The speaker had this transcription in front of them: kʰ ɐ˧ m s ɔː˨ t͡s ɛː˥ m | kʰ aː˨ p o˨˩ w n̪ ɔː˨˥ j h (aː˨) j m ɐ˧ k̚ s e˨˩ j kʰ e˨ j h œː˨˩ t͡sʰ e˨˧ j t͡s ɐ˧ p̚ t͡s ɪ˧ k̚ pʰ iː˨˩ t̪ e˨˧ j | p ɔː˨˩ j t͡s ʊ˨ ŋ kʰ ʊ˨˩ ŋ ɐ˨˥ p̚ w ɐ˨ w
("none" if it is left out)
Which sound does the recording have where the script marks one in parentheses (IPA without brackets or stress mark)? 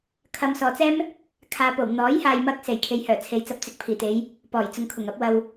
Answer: aː˨